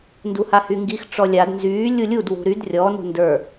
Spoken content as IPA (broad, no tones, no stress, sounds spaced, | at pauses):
n d u h a h y ŋ ɡ i x ʈ͡ʂ ɔ lʲ a d n z yː lʲ u lʲ u d w ṳ ɾ y d rʲ ɔ n ṳ n d ə˞